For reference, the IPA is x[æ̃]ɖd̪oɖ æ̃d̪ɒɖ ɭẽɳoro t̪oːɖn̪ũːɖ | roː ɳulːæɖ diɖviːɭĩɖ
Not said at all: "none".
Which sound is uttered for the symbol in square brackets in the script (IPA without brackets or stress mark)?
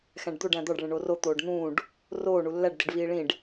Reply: æ̃